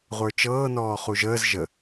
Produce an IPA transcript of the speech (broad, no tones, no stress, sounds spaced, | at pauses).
ʁʷ ə˞ t͡ʃ ɤː n ɔː χ u ʒ əː z ʒ ə